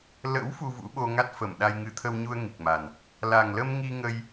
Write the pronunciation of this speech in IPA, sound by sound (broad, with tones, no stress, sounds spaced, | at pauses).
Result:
l ə̰˧˥ w f u˧ v ṵ˧˥ ɓ o˧ ŋ a˦˥ t̚ f ə˧˩ m ɗ a˧ j ŋ ɨ˨˦ t̪ʰ ə˧ w ɲ u˧ ə̯ ŋ i˨˩ k̚ m a˨˩ n | l a˨˩ ŋ l ə˧ m ŋ i˧ ŋ ə˧ j